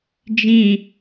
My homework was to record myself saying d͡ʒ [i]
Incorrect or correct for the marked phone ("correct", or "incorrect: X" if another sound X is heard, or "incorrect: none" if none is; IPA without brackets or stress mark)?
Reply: incorrect: ĩ